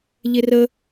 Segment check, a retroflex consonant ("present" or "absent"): absent